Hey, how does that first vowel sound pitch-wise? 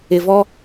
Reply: low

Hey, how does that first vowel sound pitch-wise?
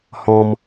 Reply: high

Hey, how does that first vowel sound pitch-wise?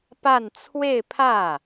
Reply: falling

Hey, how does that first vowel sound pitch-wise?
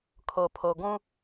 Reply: low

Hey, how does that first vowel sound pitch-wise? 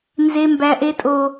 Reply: low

